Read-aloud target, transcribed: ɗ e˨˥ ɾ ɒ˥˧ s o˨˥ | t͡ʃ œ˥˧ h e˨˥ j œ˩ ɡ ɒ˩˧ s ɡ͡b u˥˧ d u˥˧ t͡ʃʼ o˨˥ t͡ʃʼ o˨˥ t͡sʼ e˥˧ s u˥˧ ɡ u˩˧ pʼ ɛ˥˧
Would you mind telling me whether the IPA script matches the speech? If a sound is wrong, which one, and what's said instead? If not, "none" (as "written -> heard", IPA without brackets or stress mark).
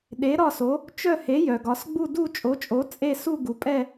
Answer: none